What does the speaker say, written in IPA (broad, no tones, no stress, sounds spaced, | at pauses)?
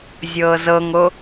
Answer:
zʲ ɤː z ɤ ŋ o